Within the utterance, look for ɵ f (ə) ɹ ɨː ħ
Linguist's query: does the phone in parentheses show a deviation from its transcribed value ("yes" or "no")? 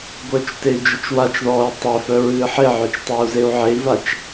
yes